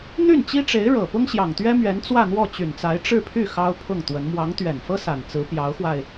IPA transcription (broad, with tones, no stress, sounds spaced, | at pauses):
n̪ y˥˩ n t͡ɕ i˥ ʈ͡ʂ e˧˥ ɪ̯ ɻ ɤ˨˩ p ʊ˥ ŋ ɕ j ɑ˨˩ ŋ t̪ ɥ ɛ˥ m ɥ ɛ˧˥ n t͡s w ä˥˧ n̪ w ɔ˥˩ t͡ɕ y˨˩ n t͡s a˧˥ ɪ̯ ʈ͡ʂ ɻ̩˥˧ pʰ y˥˩ x ɑ˥ ʊ̯ pʰ ʊ˥˩ ŋ t̪ w ə˧˥ n m w ɑ˧˥ ŋ t̪ ɥ ɛ˨˩ n f ɤ˥ s a˨˩ n t͡s ɹ̩˧˥ p j ɑ˧˥ ʊ̯ x w a˧ ɪ̯